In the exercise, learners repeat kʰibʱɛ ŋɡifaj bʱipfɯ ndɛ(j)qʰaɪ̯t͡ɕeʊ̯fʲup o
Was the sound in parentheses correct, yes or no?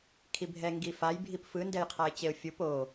yes